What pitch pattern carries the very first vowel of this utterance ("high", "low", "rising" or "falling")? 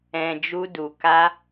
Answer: low